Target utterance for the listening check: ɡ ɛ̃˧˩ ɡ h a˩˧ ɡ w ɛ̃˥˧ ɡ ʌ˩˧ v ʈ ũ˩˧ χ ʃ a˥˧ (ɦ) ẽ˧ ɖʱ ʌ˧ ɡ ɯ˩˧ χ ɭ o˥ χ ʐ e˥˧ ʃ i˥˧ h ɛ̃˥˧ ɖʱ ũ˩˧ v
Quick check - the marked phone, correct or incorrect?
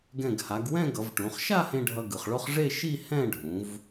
incorrect